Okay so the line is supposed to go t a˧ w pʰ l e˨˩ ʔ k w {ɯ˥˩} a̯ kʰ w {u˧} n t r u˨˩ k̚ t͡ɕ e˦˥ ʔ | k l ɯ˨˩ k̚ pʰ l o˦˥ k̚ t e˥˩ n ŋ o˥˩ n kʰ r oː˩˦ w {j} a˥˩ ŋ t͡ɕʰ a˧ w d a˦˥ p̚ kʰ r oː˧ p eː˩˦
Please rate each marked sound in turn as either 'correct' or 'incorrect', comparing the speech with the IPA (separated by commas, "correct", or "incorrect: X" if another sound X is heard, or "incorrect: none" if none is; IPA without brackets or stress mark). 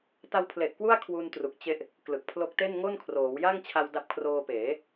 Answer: incorrect: u˥˩, correct, correct